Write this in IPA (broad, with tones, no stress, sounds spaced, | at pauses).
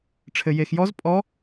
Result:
ʈ͡ʂʰ ɘ˧ j e˧ x j ɔ˦˥ z pʼ ɔ˦˥